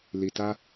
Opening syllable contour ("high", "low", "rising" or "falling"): low